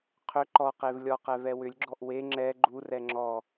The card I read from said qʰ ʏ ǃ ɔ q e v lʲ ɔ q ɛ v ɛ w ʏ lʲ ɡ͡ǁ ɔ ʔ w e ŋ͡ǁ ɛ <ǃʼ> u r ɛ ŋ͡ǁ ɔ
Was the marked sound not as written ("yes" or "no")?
yes